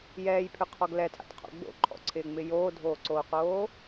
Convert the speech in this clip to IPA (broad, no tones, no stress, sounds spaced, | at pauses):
j ɛː j pʰ ʏ qʰ ɔ ɡ l ɛ tʰ a̰ t qʰ o̰ ɡ͡b o̰ ǃʰ ɔ̰ ǀʰ ɪː ŋ͡m ɪ j oː dʱ oː ǀ oː q oː